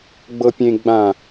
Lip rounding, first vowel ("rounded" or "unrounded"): unrounded